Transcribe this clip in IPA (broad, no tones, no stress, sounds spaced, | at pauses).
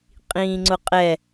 qʼ ĩː ŋ͡ǀ ʊ qʼ ɛ